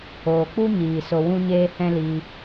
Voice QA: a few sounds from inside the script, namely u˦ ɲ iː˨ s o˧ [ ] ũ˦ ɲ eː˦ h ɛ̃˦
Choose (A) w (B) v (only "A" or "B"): A